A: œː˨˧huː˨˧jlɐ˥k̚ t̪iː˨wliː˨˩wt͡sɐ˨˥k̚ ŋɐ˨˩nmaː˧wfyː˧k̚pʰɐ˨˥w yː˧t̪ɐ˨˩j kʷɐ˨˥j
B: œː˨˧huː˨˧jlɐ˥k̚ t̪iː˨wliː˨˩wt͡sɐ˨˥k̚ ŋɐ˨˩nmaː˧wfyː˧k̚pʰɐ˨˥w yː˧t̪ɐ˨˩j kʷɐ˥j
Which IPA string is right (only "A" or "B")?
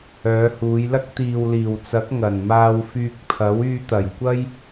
B